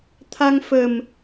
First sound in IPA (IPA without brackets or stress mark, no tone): t̪ʰ